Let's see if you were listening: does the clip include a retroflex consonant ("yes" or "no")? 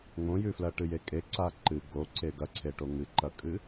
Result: yes